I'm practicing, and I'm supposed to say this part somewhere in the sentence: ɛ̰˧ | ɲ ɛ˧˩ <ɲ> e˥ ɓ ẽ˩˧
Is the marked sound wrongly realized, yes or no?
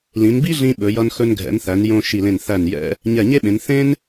no